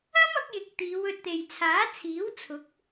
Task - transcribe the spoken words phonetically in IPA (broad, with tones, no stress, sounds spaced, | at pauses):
ɐ˥ m ɐ˨˥ k̚ j ɪ˨ k̚ t̪ iː˨˧ w ɵ˧ t̚ t̪ e˨ j t͡sʰ aː˨˥ t͡sʰ iː˨˥ w t͡sʰ ʊ˨˥ k̚